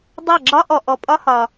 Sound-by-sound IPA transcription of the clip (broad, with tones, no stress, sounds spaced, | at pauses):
dˤ a˥˩ ɡ͡ǁ ɒ˥ ʔ ɔ˨ ʔ ɔ˨ pʼ ɒ˥ h ɒ˨